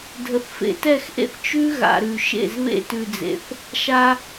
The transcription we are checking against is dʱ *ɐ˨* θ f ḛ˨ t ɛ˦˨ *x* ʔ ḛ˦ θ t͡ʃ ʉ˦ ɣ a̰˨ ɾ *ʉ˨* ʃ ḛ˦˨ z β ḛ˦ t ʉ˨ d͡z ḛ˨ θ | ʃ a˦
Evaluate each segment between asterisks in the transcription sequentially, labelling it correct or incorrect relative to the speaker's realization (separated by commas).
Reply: incorrect, correct, correct